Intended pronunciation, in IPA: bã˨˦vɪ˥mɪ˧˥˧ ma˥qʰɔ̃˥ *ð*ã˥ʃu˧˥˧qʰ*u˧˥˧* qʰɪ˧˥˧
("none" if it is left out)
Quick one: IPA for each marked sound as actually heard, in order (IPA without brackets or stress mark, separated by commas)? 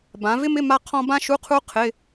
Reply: b, u˥